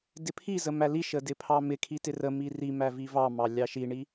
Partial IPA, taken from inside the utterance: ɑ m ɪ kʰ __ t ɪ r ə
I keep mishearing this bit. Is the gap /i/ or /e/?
i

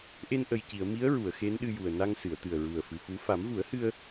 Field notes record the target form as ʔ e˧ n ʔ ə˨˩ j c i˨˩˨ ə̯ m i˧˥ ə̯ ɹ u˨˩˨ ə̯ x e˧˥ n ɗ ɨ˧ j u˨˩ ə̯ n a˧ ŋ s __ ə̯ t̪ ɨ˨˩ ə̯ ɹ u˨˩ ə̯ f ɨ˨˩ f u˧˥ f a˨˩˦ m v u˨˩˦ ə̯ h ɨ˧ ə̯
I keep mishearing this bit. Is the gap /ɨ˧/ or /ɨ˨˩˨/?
ɨ˨˩˨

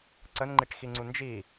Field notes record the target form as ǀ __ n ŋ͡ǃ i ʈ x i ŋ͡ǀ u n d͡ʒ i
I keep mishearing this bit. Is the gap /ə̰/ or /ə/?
ə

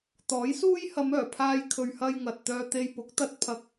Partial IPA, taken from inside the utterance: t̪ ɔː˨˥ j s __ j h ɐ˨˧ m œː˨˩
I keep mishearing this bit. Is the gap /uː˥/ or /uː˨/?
uː˥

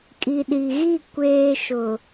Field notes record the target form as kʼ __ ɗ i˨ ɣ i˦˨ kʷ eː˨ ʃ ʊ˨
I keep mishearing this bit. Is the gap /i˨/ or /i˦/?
i˨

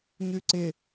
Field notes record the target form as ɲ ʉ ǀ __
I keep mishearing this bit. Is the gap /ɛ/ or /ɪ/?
ɪ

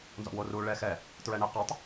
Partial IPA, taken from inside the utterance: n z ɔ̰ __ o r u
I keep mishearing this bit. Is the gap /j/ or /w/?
w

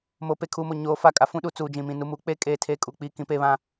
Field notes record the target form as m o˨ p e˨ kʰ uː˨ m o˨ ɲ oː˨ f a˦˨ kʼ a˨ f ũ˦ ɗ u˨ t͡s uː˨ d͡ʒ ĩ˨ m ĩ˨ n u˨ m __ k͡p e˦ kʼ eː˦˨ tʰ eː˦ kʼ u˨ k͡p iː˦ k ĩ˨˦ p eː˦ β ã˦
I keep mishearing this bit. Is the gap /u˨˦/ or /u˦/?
u˨˦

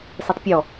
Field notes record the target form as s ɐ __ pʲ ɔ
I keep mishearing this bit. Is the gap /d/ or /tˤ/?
tˤ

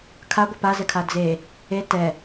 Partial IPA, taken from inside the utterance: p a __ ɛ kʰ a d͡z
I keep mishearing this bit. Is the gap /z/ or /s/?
z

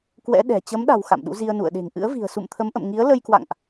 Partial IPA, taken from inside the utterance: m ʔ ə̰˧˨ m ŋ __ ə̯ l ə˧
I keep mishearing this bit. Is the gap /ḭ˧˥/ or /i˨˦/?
i˨˦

